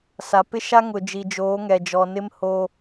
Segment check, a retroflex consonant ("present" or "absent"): absent